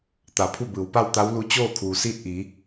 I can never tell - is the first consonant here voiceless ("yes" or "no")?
yes